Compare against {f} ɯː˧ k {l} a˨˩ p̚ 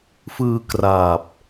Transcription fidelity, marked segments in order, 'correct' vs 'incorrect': correct, incorrect

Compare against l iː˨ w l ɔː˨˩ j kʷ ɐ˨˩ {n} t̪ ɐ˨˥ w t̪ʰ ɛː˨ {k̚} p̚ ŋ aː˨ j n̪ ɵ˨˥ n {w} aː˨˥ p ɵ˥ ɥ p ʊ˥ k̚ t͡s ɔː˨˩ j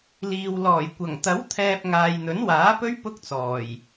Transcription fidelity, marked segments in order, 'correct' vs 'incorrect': incorrect, incorrect, correct

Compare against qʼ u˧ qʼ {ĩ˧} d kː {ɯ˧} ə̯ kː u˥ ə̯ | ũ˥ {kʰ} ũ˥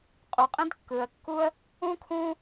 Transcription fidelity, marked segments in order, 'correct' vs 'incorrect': incorrect, correct, correct

